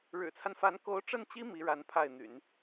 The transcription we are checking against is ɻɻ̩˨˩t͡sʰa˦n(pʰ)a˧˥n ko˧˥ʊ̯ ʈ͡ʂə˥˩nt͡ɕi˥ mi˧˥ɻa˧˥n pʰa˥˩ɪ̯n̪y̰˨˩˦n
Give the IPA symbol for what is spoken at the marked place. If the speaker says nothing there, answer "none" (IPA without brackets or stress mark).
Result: f